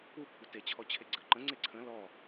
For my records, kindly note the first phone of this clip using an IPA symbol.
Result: u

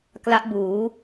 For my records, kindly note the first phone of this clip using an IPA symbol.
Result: k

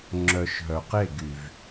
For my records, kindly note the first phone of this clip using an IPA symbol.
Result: ŋ͡ǁ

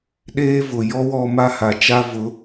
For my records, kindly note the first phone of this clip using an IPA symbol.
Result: ɗ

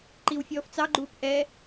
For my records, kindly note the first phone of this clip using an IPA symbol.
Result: ǃ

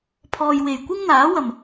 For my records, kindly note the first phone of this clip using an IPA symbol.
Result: pʰ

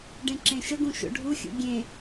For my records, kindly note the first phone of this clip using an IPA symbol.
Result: ɖ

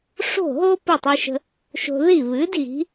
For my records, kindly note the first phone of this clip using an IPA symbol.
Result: ʂ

